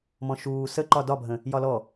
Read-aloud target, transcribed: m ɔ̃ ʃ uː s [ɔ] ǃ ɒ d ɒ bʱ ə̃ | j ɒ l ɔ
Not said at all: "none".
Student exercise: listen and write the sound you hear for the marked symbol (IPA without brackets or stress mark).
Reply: ə